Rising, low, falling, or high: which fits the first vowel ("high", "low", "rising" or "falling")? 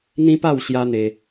high